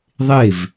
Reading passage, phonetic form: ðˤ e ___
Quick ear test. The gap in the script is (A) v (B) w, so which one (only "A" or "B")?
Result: A